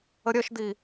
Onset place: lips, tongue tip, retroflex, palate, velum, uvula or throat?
tongue tip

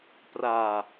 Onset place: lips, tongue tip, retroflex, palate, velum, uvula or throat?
lips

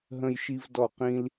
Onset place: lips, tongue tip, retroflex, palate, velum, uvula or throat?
throat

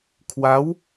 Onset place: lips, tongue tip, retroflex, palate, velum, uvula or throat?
velum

